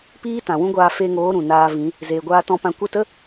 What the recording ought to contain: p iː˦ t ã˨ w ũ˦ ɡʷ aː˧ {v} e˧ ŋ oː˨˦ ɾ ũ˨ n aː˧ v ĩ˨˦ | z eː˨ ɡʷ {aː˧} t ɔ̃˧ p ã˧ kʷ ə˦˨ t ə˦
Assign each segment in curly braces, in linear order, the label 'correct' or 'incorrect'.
incorrect, correct

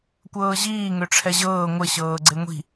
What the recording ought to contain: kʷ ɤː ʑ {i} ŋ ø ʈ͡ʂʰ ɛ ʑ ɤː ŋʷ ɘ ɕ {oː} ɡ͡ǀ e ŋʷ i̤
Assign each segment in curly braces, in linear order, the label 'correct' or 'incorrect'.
incorrect, incorrect

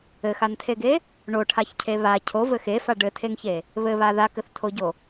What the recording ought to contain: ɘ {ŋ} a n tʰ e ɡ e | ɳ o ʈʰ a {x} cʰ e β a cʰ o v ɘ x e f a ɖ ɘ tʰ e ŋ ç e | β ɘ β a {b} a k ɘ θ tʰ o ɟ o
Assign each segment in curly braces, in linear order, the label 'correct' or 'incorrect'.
incorrect, incorrect, incorrect

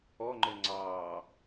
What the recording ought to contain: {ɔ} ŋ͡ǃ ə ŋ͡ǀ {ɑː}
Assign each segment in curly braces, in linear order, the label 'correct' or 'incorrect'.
correct, correct

